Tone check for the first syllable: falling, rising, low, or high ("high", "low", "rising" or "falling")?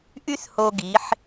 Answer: high